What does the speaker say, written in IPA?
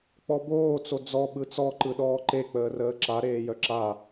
k͡p ɔ b oː t͡s o d͡z ɔ ɓ ɯ t͡s ɔ ǃ ɯ ɗ ɔː ǃ e k͡p əː r əː ǁ a ɾ eː j œ ǁ a

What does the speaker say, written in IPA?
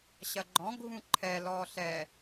ɕ ɐ ɡ͡ǃ ɔ̃ ɡʱ ũ ǃʰ ɛ l ɔ ɬ ɛ

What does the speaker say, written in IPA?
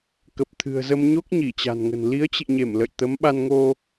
k ə˨˩ p̚ t̪ʰ ɨ̤˨˩ ə̯ z ə˧ m ɲ o˦˥ k̚ ɲ i˧˩ t͡ɕ a̤˨˩ n ŋ ə̤˨˩ n l i˨˦ ə̯ t͡ɕ ḭ˧˨ ɲ e˧˩ m l ə̰˧˨ j t̪ ə˨˦ m ɓ a˧ n ŋ o˧

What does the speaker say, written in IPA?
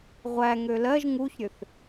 ʁʷ æ ŋ ø l ɜ ʒ ŋ u ç ɾʲ ø θ

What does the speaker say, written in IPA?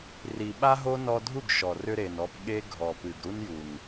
r i˨ ɓ a˦ ɦ o˦ n ɔ˧ dʱ u˦˨ ɡ ʃ ɔ˨ r ʏ˧ ɾ e˨ n ɔ˧ p ɠ e˦ ɡʱ ɔ˨ p ɨ˨ ɡ ɾ u˦ n j u˨ n

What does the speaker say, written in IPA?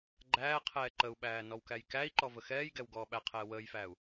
ɡ͡ǃ æː qʰ ɛː ǃ ə u̯ ɓ æː n ɔ w k æ j k æ i̯ ǃ ɔ v ə x ɛː j ɡ ɛ w ɡ ɔː ɓ æ qʰ ɛː w əː j f æː u̯

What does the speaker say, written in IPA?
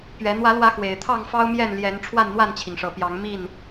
p ɥ ɛ˨˦ n̪ w ä˨˦ l w ä˨˦ x w e˨˩ ɪ̯ t̪ʰ ɑ˥˨ ŋ f ɑ˦ ʊ̯ m j ɛ˥˨ n l j ɛ˨˦ n ʈ͡ʂʰ w a˥˨ n n̪ w a˥˨ n t͡ɕʰ i˩ ŋ ʂ ɤ˨˩ p j ɑ˨˦ ŋ m i˥˨ n

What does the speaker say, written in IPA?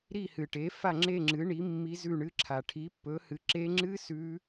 ɾ i˥˧ h ɨ˨ ʈ e˨˥ f a˥˧ ŋ͡ǁ e˥˧ ŋ͡ǁ ɨ˨˥ ɳ i˨˥ mː i˦˥ z ʉ˥˧ ɳ ɨ˦˥ ǁʰ a˨ ʈʰ i˨˥ pː ɵ˨˥ h ɨ˨˥ ǁ e˦˥ ŋ͡ǁ ɨ˦˥ s ʉ˦˥

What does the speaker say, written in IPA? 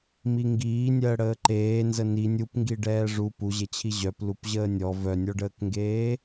m i ŋ ɡ iː nʲ əː ɽ əː ǃ eː n z ə n i nʲ u p ŋ ɡ i ɖ ɛː ʐ u p u ʑ e t͡ɕʰ i ʑ œ p l u p ʑ əː nʲ ɔ v œ nʲ ɔ ɖ əː k ŋ ɡ eː

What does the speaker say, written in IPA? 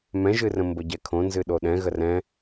m ɛ̃ ʒ ɨ r ə̃ m b ə ɟ ɛ kʰ õ n z ɨ ɗ o ɗ ɛ̃ ɣ ə r ɛ̃

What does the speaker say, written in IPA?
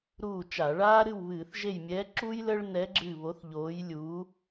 ɾ uː˦˨ t͡ʃ a˧˩˧ ɭ aː˥ ɾ ɨ˦˨ w β ɨː˧˩˧ θ ʒ e˦˨ j mʲ ɛː˧˥ ǁ uː˥ j l əː˥ ɭ n ɛ˧˥ ɡ͡ǁ ɨː˦˨ β o˧˥ θ ʎ oː˧˥ j lʲ uː˧˥

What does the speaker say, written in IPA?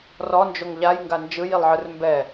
r ɔ n d͡ʒ o ŋ ʎ a j ŋ ɡ a n d͡ʒ ɯ j i lˠ ʕ ɯ r m b ɛ

